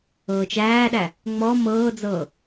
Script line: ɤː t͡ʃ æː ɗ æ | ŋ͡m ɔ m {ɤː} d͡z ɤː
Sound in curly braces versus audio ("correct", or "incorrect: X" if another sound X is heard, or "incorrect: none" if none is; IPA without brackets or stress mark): correct